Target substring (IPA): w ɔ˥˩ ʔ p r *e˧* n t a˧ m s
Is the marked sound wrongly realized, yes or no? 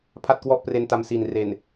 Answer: no